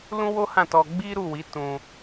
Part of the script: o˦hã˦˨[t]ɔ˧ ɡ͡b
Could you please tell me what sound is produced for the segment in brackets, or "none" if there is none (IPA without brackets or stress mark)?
t